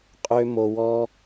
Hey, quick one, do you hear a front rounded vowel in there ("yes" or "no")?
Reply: yes